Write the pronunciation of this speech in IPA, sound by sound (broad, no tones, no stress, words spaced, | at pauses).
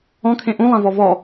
ɔ̃kʰẽ ʔũlˠãvɔ vɔ